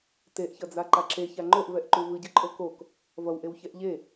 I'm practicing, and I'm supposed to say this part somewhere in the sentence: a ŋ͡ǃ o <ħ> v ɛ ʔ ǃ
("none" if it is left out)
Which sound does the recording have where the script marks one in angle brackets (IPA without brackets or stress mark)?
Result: ʔ